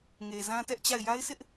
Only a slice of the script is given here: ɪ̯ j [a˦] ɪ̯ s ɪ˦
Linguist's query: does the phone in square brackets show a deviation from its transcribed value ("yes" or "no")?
no